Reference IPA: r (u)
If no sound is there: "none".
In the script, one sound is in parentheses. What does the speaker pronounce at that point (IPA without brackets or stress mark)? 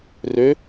ø